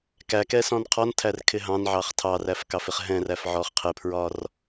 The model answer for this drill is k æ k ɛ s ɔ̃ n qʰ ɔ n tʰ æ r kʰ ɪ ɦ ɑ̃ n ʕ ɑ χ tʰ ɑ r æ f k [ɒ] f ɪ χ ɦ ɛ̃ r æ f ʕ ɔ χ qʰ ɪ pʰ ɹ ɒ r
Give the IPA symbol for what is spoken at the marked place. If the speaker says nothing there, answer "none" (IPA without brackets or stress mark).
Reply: ɑ